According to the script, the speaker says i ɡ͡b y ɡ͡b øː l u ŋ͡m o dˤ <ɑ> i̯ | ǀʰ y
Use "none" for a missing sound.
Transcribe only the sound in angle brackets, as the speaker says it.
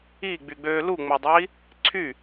ɑ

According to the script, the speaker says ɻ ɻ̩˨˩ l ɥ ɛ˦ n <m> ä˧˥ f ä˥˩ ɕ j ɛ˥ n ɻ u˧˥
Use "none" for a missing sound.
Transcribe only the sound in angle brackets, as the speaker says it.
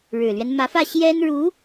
m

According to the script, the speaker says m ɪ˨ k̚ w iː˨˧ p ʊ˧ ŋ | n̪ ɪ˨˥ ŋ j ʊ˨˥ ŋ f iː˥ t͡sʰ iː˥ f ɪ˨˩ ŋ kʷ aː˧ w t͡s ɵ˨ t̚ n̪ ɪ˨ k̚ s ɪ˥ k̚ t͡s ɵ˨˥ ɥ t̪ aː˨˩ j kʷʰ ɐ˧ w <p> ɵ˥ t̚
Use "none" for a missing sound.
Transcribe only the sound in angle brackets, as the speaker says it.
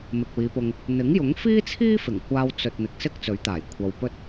p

